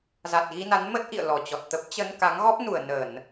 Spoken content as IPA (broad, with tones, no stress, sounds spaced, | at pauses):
z a˨˩ t̚ ɣ i˧ n a˨˦ n m ə˦˥ t̚ ʔ ḭ˧˨ ə̯ l ɔ˧˩ t͡ɕ ɔ˨˩ t̚ t̪ ə˦˥ p̚ t͡ɕ ə˧ n k a˨˦ ŋ ɣ ɔ˦˥ p̚ n u˧˩ ə̯ n ə˧˩˨ n